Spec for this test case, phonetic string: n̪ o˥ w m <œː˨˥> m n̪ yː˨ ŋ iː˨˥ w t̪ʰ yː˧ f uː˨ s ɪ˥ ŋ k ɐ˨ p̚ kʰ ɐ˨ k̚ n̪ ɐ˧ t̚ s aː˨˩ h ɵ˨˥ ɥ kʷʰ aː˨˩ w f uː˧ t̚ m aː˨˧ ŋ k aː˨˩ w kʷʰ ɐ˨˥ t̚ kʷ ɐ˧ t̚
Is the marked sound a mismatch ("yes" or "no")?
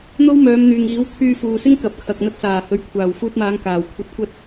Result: yes